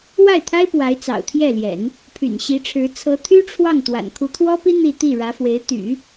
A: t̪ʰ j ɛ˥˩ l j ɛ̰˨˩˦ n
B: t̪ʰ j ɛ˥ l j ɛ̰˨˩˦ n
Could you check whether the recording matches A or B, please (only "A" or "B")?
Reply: A